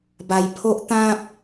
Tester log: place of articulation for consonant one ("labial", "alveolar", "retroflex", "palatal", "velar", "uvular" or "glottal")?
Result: labial